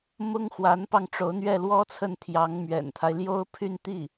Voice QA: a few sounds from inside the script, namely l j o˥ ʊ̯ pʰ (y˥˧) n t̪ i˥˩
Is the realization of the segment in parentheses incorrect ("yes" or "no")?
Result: no